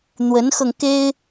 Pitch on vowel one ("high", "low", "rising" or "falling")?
rising